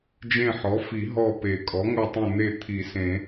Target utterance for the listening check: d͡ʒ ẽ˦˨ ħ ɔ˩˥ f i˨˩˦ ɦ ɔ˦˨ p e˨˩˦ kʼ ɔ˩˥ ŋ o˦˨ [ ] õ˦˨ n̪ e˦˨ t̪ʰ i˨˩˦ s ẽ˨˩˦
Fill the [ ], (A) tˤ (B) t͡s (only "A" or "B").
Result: A